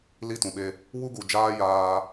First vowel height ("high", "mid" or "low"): high